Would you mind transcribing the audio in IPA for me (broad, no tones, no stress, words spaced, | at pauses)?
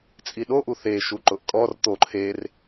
t͡sʼiɗoʔu θeʃu ǃʊʔkʼɔr t̪o ǃʰer